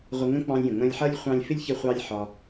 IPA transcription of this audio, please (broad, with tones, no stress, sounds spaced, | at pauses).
ʁʷ ə˧ ŋ ə̃˦ k͡p ɑ̃˧ lʲ j ə̃˨ ŋ͡m ə̃˧ lʲ ħ ʌ˦ lʲ χʷ ɑ̃˧ lʲ f ɪ˦ lʲ ç ə˧ χʷ ɑ˦ lʲ ħ ɒ˧